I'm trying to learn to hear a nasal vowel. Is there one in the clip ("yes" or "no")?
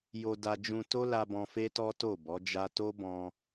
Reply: yes